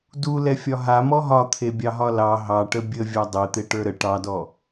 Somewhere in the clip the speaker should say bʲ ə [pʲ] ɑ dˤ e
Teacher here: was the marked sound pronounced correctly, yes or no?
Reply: no